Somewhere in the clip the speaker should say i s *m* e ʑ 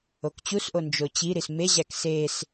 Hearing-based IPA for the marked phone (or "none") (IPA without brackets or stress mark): m